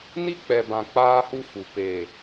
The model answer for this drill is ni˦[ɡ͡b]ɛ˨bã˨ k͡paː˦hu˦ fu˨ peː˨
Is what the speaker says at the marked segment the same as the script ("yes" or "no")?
no